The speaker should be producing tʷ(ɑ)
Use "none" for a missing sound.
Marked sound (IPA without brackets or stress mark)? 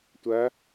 ɐ